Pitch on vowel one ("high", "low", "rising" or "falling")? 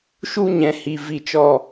high